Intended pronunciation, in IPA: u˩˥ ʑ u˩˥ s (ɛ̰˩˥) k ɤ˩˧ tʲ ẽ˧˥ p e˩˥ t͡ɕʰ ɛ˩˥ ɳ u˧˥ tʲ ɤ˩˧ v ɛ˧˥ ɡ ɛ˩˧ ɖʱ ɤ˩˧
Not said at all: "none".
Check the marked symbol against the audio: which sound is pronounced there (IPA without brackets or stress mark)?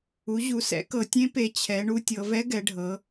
ɛ̰˩˥